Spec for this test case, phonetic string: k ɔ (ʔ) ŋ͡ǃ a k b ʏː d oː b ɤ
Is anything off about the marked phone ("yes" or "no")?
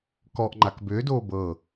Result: no